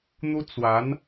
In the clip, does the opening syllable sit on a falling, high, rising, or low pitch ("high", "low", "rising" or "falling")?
high